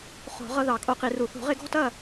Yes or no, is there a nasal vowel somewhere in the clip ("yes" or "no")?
no